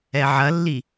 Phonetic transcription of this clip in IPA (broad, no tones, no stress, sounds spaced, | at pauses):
ɛ ʕ ɐ lː i